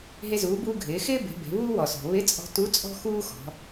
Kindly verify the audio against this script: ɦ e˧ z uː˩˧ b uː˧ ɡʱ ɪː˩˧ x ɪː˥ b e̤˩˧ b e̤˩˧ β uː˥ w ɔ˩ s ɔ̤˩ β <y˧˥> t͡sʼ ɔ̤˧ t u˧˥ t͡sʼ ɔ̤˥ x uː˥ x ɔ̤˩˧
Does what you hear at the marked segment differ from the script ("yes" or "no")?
yes